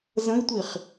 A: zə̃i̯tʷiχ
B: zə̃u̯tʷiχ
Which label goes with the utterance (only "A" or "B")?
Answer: A